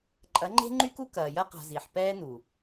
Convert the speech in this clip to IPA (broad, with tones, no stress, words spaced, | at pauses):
ǃʼɐ˨˦ ŋ͡ǃe̤˦ŋ͡ǃy˦ku˦ kɐː˨jɐ˦ qa̤˨ zi˨ħ pɛː˦nu˨